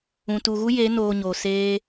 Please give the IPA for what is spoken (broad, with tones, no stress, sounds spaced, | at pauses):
ũ˨ t u˨ ɣ u˦ j e˨˦ n oː˧ ɲ oː˨ s eː˦